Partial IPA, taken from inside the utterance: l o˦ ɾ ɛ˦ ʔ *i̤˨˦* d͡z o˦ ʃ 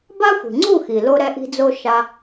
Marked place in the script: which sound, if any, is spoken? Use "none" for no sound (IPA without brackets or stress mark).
i̤˦